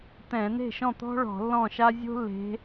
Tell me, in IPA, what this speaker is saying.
t̪ ɛ̃˧˩˧ n e̤˥˩ ʃ ɔ̃˥˩ t̪ ɔ̤˥ ɭ ɔ̤˧˩˧ lː ɔ̃˥˩ ʃ a˥ zʲ o̤˥ lː e̤˨˦

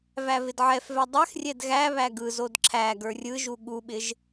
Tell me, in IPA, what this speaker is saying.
v æ v ɪ d ʕ ɛ f v ɛ dˤ ɛ x rʲ ɛ d ɣ æ β æ ɡ ɯ z o d ǁʰ æ ɡ ə˞ rʲ ɯ ʒ u ɠ u ɓ ɪ ʒ

